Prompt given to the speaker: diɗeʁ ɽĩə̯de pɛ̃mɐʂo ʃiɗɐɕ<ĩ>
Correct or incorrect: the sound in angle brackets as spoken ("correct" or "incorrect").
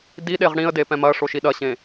incorrect